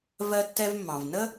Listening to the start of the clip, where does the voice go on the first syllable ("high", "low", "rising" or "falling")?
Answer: high